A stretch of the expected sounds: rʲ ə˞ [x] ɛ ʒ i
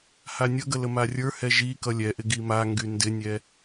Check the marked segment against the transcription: incorrect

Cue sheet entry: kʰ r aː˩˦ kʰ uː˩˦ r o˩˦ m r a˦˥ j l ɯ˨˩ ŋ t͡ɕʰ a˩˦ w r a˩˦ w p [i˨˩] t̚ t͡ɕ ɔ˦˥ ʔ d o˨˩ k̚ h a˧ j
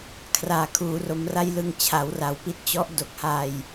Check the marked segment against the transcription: incorrect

